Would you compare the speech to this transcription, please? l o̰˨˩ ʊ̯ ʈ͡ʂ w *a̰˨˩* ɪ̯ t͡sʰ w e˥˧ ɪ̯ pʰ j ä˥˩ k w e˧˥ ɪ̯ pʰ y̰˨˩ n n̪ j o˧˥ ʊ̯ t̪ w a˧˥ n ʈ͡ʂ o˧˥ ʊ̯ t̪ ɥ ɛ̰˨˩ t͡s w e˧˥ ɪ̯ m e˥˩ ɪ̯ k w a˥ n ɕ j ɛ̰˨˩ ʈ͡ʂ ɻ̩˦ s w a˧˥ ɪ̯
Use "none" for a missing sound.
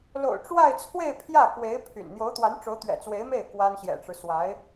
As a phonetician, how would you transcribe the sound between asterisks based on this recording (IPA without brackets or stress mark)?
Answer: a˥˧